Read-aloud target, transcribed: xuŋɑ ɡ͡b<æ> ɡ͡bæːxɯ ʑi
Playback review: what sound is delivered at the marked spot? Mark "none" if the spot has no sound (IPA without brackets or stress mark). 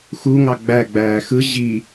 æ